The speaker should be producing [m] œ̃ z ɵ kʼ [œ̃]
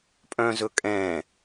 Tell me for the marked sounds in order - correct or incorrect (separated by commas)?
incorrect, incorrect